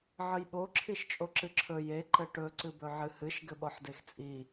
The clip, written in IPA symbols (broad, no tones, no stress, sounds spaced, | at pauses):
ʕ ə j ɓ o ǁʰ i ʃ t͡ʃʼ o ǁ ɨ ǁʰ ɵ j e ǃ ɘ ʈ ɵ ǀ ɨ b ɵ ʕ ɨ h ɨ ʃ ɡ ɘ ɓ ɔ ħ d e x t͡sʼ i